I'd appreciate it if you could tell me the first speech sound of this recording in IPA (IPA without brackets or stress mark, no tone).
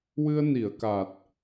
w